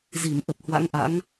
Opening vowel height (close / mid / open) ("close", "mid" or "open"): close